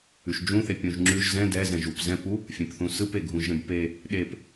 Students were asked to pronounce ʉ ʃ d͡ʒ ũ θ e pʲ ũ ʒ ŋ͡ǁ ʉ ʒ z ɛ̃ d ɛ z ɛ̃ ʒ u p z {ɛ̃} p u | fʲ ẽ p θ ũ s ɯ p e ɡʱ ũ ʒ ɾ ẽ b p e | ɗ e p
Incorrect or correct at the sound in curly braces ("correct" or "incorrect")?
correct